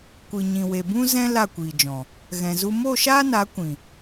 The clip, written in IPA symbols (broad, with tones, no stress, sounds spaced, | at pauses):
kʷ ɨ˨ ɲ ĩ˨ w e˨ b ũ˦ z ɛ̃˦ l a˦˨ kʷ iː˨ d͡ʒ ɔ̃˨ | ɣ ɛ̃˨ z u˧ m o˦˨ ʃ aː˦ n a˨˦ kʷ ĩ˨